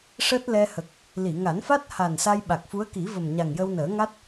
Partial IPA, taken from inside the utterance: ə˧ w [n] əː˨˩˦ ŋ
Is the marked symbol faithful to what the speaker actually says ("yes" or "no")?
yes